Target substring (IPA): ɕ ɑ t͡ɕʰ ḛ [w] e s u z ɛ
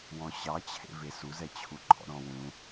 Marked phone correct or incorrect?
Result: incorrect